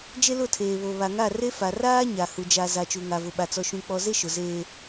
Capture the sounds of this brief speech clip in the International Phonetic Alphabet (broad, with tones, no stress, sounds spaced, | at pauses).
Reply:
d͡ʒ e˦ l ʊ˦˨ tʰ eː˨ β o˨ β a˨ ŋ a˦˨ r e˦ f a˨ r aː˦ ɲ a˨ h u˨ d͡ʒ a˨ z a˨ t͡ʃ u˨ ŋ a˨ v ʊ˨ ɓ a˨ t͡s ɔ˨ ʃ ũ˨ k͡p ɔ˨ z e˦ ʃ ʊ˨ z eː˦